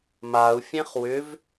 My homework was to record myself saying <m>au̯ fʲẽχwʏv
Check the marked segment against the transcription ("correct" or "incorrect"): correct